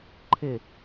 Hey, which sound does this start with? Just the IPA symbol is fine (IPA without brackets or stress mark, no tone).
ǃʰ